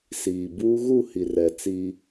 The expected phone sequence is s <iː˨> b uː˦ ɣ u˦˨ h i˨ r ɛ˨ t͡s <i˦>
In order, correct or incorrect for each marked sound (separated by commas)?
correct, correct